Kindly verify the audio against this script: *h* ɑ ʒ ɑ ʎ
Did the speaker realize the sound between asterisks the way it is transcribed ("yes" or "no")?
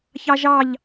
no